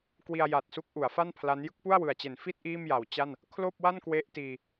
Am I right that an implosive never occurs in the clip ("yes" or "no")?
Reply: yes